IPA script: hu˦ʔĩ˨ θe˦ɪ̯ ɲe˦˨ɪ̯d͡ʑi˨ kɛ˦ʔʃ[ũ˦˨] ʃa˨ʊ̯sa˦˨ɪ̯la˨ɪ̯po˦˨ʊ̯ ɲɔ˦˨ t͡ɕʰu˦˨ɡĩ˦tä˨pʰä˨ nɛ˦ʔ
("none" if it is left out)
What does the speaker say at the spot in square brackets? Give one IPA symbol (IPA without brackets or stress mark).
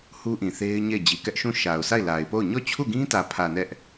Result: ũ˦˨